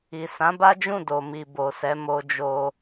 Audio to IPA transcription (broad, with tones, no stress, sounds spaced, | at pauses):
i˨ s ã˨˦ b a˦ d͡ʒ ũ˦˨ d o˨ m i˨ b o˨ s ɛ˨˦ m o˧ d͡ʒ o˧